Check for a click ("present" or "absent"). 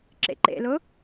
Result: present